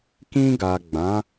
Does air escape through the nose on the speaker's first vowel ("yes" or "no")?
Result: yes